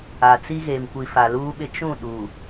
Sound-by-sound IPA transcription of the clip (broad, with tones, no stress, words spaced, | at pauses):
a˨t͡si˦ɣe˨mkʷi˨ fa˨luː˦ɓɪ˦ t͡ʃũ˦˨ɗu˨